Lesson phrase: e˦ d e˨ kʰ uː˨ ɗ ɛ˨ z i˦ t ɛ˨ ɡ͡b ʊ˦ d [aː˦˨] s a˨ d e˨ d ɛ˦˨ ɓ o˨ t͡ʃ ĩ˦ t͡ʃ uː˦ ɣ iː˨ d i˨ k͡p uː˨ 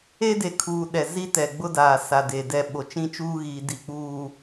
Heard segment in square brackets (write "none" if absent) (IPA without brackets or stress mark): aː˨